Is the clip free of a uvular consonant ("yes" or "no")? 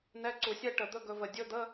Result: yes